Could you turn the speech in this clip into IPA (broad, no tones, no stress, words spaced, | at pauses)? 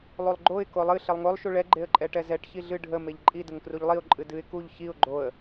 lˠulˠɡ͡ǃoɪ̯ kolˠɨ ɬelˠŋolˠ ʃuɭɛ ɡ͡ǃeə̯ǃʼɛʈɛzɛʈ çiɮɨ ɖʱə meʎǃʼi dəŋkruʎlˠiʊ̯ ǃʼɨdɨɪ̯ kuʎ çiʊ̯ ɡ͡ǃoə̯